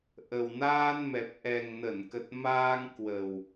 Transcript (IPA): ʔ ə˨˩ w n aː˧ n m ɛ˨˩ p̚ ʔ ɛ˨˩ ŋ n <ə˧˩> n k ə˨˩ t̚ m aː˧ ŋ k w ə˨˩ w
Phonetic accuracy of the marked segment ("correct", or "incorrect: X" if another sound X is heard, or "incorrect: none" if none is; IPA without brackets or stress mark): correct